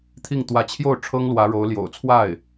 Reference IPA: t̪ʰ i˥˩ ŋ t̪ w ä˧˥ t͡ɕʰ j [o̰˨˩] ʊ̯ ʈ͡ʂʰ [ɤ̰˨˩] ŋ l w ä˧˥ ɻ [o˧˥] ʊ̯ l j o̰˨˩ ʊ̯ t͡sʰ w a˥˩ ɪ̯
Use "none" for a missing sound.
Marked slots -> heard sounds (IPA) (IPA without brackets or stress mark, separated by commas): o˥˩, ɤ˥, o˧˥